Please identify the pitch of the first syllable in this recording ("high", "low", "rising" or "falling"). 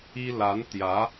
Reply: high